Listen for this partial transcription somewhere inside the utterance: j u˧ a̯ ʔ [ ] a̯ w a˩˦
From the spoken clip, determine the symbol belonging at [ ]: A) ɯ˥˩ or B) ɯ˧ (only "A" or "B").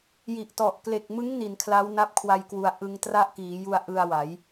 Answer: B